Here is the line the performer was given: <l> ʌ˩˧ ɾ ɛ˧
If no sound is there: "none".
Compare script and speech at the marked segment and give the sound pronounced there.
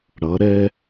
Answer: ɽ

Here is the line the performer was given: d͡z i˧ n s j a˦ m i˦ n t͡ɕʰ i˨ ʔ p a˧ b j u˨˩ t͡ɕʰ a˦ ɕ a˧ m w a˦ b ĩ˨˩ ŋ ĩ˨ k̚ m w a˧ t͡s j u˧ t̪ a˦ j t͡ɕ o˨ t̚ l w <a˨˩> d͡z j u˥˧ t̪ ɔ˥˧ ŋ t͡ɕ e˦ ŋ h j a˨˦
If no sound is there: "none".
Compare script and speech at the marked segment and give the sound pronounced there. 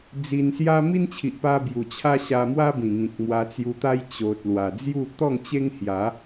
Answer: a˨˩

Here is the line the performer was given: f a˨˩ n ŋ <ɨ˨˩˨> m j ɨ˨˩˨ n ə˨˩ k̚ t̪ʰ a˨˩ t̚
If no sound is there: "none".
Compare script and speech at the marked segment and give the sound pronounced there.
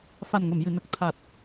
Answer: ə˨˩˨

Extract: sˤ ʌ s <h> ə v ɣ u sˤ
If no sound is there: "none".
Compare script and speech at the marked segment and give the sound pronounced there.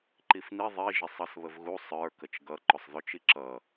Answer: β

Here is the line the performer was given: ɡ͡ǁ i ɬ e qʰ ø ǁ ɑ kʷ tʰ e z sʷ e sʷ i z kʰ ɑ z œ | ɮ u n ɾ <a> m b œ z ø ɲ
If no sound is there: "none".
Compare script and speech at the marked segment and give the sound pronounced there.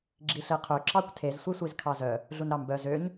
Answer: ɑ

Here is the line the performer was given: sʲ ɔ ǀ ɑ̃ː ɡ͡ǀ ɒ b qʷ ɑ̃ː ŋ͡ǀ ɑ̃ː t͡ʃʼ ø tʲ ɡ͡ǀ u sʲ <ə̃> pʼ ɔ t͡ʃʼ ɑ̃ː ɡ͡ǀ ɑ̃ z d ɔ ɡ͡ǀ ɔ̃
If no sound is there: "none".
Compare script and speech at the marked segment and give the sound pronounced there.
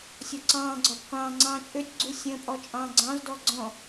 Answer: ə̃ː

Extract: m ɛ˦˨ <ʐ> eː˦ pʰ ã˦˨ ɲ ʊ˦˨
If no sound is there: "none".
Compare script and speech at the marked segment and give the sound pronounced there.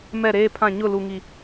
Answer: ɾ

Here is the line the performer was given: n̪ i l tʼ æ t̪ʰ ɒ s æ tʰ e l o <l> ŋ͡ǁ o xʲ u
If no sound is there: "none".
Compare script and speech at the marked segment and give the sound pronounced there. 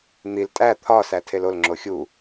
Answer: l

